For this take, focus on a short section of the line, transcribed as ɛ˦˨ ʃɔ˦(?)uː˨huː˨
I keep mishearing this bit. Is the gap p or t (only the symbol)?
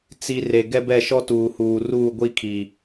t